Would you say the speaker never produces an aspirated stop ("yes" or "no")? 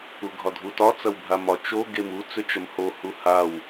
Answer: yes